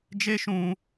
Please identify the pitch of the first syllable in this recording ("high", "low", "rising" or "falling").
high